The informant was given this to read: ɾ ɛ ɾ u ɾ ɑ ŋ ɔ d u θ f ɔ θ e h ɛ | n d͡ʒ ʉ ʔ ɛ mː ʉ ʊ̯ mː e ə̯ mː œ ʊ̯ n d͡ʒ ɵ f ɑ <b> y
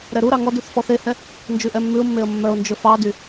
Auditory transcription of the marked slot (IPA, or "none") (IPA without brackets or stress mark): d